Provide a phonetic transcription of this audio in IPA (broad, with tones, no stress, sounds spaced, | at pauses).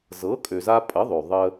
z ɤ˩˥ kʼ ø˩ z a˧ pʼ ə˩˥ ðˤ ø˩ ðˤ ə˧